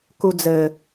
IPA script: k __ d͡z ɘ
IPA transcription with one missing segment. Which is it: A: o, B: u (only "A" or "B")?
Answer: B